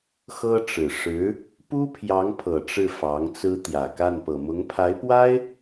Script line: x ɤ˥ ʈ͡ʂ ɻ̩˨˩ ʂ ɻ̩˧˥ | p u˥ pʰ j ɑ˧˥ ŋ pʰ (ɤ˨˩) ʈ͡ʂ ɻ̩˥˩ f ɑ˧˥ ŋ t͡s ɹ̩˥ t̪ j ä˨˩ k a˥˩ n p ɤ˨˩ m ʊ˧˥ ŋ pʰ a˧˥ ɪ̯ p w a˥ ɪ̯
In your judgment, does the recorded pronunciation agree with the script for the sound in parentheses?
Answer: yes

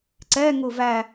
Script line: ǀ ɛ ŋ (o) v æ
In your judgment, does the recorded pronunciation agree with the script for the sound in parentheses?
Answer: no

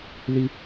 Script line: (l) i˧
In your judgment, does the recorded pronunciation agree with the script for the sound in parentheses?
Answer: yes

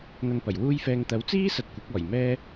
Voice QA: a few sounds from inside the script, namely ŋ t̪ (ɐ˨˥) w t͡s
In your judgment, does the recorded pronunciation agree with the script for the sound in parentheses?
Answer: yes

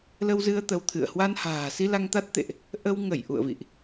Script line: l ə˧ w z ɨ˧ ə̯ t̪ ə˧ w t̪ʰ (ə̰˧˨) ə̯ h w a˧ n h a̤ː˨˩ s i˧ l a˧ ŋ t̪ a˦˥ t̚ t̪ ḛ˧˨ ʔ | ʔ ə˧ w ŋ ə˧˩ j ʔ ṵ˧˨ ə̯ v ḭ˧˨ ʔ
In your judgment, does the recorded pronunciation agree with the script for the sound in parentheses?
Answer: no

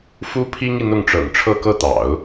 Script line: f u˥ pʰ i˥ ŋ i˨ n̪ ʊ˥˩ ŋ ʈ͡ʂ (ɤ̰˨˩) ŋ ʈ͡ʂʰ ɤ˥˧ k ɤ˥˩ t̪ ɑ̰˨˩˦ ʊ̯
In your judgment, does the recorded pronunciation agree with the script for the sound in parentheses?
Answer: yes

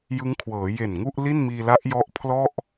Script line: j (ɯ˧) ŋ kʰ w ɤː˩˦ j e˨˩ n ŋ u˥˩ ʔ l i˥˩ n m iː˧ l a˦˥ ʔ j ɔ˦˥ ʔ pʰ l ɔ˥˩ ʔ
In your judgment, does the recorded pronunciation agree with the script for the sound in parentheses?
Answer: no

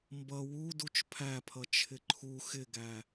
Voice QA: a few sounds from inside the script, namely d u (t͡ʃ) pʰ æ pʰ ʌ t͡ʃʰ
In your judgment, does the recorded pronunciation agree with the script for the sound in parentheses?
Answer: yes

